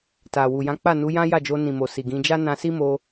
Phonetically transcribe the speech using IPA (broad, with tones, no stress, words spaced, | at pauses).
ta˨wu˨ jã˨˦k͡pa˦˨nu˨˦ jã˦ja˦˨d͡ʒo˧nĩ˨ mo˨si˨ɡĩ˨˦ d͡ʒa˦nã˧si˦mo˧